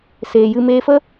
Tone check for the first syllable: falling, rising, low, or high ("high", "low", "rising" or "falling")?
low